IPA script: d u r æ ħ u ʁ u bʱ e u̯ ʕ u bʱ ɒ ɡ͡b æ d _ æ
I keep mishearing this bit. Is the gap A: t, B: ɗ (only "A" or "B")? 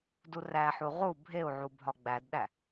B